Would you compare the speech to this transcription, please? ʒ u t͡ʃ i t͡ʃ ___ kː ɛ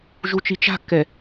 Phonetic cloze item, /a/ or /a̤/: a̤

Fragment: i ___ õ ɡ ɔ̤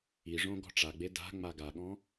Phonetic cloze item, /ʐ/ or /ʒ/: ʐ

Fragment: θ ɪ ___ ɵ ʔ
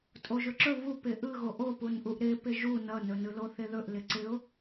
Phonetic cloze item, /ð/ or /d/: ð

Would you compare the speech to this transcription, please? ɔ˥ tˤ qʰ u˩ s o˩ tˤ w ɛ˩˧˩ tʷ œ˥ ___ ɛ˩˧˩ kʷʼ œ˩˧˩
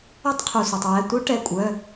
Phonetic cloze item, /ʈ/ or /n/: ʈ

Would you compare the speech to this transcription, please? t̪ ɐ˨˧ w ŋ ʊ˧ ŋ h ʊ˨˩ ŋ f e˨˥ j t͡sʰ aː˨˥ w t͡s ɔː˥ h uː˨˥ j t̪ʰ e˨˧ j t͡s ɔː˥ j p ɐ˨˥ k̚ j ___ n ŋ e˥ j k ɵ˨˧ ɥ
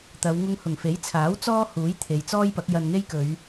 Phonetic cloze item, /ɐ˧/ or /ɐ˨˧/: ɐ˧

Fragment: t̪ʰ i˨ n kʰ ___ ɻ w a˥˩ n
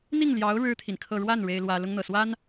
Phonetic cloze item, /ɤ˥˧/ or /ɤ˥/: ɤ˥˧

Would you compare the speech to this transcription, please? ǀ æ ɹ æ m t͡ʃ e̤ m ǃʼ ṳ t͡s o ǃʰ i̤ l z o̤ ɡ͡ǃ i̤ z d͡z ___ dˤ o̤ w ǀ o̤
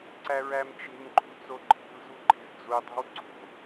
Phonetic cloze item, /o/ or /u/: u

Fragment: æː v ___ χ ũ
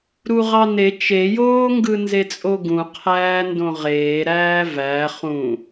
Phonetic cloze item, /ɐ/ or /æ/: æ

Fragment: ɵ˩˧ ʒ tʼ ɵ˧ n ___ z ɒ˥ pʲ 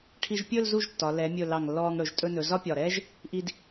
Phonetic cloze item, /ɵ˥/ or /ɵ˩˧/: ɵ˩˧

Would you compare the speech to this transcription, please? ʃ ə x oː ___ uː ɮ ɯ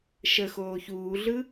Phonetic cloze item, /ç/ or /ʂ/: ç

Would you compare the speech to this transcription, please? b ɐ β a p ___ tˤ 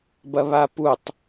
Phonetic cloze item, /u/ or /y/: u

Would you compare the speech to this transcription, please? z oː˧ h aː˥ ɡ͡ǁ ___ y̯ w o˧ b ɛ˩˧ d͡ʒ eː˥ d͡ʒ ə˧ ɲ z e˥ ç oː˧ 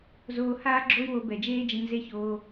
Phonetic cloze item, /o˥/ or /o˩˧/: o˥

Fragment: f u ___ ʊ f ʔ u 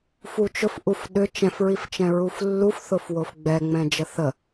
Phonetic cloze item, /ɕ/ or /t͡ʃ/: t͡ʃ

